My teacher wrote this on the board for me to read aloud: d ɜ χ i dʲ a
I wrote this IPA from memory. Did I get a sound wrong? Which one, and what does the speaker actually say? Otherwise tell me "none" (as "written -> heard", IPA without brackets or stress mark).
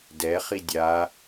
ɜ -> ɛ